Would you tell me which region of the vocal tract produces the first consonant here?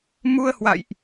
lips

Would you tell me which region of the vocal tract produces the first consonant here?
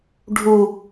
retroflex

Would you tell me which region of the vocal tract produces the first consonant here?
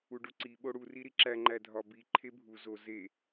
retroflex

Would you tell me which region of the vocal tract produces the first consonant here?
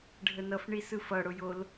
retroflex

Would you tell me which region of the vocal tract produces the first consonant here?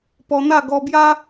lips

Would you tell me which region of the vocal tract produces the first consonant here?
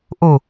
throat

